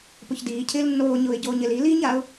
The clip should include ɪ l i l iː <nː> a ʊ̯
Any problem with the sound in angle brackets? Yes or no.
yes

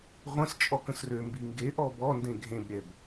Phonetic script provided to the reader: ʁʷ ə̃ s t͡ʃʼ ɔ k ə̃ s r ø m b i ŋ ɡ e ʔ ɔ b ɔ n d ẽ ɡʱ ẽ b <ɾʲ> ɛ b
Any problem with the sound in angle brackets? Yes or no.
no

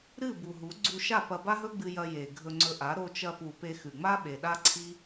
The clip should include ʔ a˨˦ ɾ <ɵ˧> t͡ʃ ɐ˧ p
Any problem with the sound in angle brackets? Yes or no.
yes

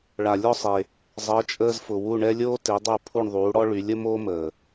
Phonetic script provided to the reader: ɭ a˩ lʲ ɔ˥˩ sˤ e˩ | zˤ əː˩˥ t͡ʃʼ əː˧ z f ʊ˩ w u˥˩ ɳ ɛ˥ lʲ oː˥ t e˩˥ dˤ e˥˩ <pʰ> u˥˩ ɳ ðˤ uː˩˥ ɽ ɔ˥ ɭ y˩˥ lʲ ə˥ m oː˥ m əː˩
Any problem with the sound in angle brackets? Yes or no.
no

